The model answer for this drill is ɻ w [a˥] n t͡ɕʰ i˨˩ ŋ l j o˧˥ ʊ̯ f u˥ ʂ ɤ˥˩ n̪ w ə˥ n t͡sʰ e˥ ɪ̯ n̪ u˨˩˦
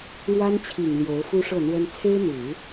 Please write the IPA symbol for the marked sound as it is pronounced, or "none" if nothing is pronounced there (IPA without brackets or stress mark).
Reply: a˥